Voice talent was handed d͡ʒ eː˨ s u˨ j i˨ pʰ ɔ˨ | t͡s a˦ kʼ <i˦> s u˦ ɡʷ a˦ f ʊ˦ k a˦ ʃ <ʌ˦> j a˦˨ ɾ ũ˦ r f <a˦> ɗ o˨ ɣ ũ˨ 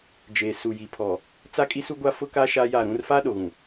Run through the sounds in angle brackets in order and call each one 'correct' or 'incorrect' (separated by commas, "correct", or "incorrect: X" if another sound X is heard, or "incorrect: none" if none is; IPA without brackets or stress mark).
correct, incorrect: a˦, incorrect: aː˦